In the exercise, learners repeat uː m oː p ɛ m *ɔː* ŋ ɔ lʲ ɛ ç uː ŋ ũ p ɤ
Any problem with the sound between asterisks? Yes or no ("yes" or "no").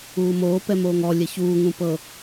yes